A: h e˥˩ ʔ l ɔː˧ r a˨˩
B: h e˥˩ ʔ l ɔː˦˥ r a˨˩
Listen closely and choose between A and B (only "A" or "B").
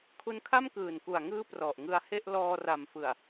A